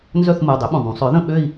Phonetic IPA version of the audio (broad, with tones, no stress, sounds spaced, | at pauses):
n z œ˥˧ θ m u˩˧˩ dˤ ʏ˨˥ ɓ ũ˩ ðˤ ũ˩˧ sˤ œ˨˥ ð ə̃˥˧ ɓ ø˥˧ i̯